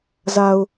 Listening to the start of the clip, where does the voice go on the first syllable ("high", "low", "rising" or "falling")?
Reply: low